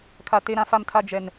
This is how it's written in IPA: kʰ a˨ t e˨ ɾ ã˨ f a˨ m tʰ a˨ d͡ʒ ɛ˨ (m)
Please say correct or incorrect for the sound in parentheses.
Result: incorrect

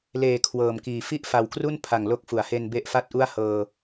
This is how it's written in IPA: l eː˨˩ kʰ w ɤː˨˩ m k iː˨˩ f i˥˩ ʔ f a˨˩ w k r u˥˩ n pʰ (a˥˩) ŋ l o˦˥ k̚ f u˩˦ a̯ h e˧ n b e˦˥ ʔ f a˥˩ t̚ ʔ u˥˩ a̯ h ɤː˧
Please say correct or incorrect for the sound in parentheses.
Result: incorrect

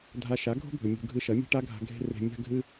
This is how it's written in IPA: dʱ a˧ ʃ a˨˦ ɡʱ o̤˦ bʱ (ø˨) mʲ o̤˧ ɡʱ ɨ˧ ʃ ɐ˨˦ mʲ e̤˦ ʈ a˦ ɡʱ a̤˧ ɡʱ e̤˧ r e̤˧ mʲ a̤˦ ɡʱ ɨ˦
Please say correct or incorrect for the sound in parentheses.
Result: incorrect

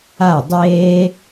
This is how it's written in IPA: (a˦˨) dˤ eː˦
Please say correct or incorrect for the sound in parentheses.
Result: correct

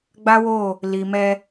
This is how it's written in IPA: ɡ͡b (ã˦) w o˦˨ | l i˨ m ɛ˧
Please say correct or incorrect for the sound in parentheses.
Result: incorrect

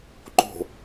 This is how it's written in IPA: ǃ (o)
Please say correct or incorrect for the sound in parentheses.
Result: incorrect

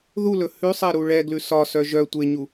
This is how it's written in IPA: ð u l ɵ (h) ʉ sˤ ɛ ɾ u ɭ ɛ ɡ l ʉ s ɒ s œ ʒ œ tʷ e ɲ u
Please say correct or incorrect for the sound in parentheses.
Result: correct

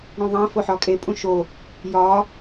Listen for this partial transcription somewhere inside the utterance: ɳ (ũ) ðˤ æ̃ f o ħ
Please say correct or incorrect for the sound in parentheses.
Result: correct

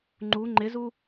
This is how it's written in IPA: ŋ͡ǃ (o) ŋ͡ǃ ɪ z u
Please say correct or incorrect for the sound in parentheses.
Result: incorrect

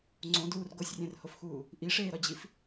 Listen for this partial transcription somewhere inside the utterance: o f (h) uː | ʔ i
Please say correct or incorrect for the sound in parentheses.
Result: incorrect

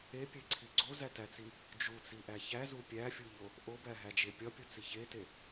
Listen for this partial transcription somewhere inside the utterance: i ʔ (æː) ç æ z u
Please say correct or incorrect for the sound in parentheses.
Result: incorrect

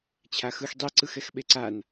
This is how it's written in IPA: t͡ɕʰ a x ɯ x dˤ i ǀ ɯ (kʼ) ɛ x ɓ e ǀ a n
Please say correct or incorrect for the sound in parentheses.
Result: incorrect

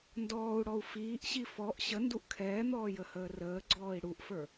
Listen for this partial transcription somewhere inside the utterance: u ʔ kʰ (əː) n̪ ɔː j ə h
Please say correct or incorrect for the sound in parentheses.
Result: incorrect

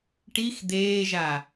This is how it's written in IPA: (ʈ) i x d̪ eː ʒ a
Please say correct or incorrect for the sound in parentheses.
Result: correct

